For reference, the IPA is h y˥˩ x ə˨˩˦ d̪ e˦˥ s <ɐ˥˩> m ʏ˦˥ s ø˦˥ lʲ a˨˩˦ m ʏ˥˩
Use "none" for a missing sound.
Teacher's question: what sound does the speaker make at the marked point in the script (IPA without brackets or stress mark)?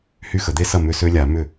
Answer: ɐ˥˩